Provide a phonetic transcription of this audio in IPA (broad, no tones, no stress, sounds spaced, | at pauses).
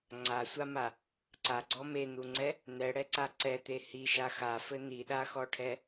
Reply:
ŋ͡ǀ a sʷ a m a | ǀ a ɡ͡ǀ ɔ m e n̪ u ŋ͡ǀ ɛ | n̪ ɛ ɽ ɛ ǀ a ǀ ɛ t̪ e h i ʃ a x a f ɘ n̪ i ɗ a x ɔ ʈʰ ɛ